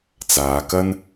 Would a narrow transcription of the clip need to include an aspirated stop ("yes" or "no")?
no